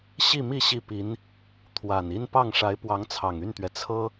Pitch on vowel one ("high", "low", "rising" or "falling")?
falling